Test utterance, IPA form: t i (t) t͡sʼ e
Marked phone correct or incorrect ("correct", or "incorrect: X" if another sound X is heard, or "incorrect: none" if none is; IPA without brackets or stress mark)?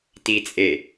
incorrect: none